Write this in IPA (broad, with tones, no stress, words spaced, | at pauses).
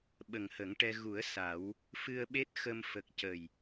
ɓə˨˩ŋhə˨˩˦ŋʈɛ˧ ɣu˨˩˦ə̯ sa˨˩˦w | fɨ˧ə̯ɓe˦˥t̚xə˧m fə˨˩k̚cə˨˩j